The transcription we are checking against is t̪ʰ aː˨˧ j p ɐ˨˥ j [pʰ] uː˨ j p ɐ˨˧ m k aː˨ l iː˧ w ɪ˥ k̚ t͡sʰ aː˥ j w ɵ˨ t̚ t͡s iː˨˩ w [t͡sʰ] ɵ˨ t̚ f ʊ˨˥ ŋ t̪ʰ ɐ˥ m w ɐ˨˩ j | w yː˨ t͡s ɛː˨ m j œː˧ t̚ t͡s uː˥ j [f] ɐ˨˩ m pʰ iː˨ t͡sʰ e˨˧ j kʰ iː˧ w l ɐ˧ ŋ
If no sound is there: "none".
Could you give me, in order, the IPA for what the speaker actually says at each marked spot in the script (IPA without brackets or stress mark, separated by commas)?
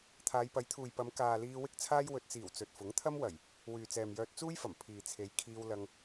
t̪ʰ, t͡s, f